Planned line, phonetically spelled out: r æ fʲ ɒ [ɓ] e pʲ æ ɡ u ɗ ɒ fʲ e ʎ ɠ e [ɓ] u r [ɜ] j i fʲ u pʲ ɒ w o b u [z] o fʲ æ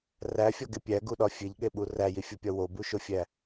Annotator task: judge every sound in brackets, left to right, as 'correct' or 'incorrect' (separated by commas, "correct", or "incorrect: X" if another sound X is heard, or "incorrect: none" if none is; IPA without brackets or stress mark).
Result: incorrect: ɡ, correct, incorrect: æ, incorrect: ʃ